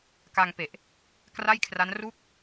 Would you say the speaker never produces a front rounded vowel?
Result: yes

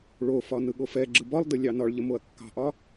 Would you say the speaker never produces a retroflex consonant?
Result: no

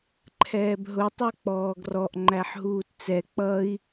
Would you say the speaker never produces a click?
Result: no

